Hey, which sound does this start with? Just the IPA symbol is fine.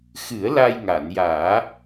x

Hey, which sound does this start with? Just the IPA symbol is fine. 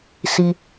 s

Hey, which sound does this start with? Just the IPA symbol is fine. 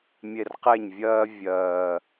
mʲ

